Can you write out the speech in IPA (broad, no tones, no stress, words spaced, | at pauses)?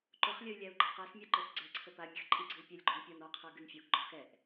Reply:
ǃʊχlʲəy̯ lʲæu̯ɡ͡ǃaqæsmʲa ǃə˞sɡ͡ǀɛǀʰə pamʲəx ǃʼiɡ͡ǀɨy̯ pʲɛlʲɡ͡ǃon pʲɔn ɔqʰə˞ ɡɨnfʲoɡɡ͡ǃɔ xɛʔ